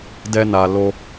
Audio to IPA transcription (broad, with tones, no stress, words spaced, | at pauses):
dɛ˦na˧lo˦